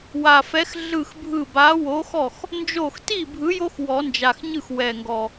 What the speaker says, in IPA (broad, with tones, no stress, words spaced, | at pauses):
wa˨˩fɛ˨˥x ɮɯ˥˩xbʱɯ˥˩ ba˨˥wo˨˥xɔ˥˩x | nd͡ʒo˥˩x ti˥˩bʱɯ˨˥jo˦x wɔ˨˩˦nd͡ʒa˨˩xɲɯ˥˩x wɛ˨˩ŋɡɔ˨˩